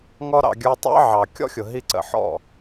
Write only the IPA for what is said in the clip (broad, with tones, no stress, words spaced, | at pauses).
ŋɔ˦ɾɑ̰˧ ɡʲə˞˧tˤɑ̰˦ʕɑ˨ kʲɔ̰˦xʲʊ˨ɦi˧ǀə̰˨ ħɔ̰˦˨